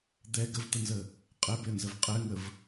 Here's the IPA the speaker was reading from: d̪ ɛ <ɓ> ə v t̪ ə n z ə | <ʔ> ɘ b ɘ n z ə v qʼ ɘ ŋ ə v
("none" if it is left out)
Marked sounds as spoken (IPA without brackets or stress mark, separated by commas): ɡ, qʼ